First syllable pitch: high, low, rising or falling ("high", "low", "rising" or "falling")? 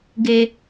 low